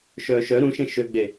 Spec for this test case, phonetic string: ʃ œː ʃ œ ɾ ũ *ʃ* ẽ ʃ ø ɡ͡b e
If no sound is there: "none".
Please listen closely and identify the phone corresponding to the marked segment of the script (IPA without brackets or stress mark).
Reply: ʃ